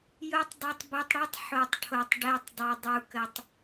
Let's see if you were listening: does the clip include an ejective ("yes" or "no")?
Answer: no